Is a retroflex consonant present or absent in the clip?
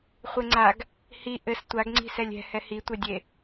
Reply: absent